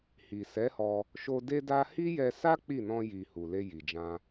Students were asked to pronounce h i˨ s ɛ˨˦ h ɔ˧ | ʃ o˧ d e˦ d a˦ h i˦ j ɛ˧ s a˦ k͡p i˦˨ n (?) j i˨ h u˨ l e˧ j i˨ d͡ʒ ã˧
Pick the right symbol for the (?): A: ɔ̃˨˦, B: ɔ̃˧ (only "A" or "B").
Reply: B